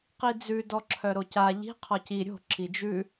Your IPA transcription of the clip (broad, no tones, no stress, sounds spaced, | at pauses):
q i d͡z ʉ d ɔ ǁʰ œ ɾ o c a ʎ i̤ qʰ ɔ c i ɾʲ o̤ ǁ i d͡ʒ ʉ